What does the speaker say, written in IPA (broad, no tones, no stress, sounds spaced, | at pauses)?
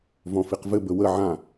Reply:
v ɔ̃ f i q v ɘ b ə w ə ʕ ã